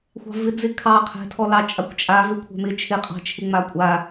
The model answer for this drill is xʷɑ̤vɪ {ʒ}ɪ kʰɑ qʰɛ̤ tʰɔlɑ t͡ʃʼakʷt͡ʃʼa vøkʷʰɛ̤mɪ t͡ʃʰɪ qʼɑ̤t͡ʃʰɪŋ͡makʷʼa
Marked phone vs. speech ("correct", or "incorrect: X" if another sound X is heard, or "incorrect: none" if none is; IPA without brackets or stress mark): incorrect: d͡z